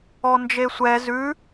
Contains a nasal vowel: no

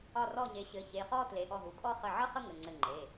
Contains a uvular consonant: yes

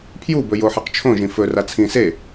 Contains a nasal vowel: yes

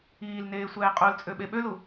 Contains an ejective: yes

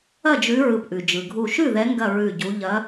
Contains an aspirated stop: no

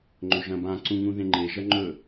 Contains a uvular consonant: no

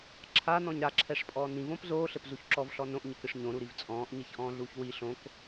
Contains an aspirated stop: yes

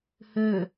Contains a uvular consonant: no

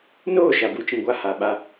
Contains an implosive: yes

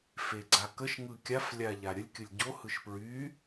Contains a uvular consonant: no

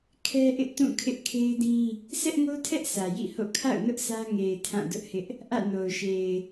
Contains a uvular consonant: no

